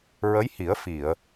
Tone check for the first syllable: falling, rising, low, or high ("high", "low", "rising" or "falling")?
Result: rising